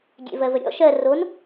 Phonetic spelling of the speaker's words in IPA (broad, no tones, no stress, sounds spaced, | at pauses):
ɡʲ ḛ v ɜ v ə ɾʲ ɔ̰ ʃ ɜ r o n